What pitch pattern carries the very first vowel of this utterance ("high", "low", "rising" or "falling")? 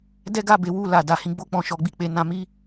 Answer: high